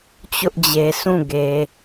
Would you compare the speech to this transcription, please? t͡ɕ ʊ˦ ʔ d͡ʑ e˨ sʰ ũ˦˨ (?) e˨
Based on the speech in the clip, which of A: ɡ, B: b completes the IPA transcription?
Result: A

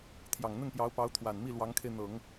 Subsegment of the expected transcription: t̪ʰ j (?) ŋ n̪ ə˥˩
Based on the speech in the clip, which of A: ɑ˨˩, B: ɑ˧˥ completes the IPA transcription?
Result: A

